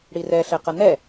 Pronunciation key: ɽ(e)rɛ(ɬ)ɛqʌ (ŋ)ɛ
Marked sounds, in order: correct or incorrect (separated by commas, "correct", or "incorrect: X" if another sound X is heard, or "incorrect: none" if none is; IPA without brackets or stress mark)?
incorrect: i, correct, incorrect: n